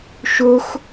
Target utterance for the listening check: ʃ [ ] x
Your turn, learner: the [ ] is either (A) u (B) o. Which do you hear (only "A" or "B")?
B